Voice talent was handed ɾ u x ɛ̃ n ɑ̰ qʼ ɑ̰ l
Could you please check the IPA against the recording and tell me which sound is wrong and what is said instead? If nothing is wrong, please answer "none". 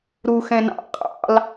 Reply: none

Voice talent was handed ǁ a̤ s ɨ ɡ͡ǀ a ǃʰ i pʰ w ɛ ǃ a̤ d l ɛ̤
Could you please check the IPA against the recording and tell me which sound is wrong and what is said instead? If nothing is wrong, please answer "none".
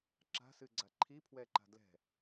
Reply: none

